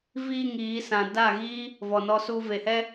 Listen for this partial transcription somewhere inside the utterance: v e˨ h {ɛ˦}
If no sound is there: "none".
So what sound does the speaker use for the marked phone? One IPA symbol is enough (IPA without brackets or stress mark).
ɛ˦